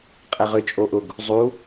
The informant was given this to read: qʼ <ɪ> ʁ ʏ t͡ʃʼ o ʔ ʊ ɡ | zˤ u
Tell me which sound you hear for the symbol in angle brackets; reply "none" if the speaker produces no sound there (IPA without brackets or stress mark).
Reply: ɛ